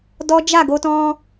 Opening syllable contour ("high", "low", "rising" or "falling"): high